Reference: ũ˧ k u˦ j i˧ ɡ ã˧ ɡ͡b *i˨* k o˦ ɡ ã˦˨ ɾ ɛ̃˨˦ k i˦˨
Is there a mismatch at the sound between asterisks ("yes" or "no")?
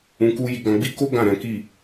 yes